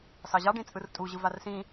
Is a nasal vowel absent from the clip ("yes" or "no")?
no